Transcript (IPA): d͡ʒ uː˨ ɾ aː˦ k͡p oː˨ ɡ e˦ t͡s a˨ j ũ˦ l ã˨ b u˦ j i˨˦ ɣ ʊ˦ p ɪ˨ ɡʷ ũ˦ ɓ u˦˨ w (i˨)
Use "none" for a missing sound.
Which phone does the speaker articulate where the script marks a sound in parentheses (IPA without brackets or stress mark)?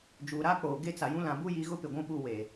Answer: e˨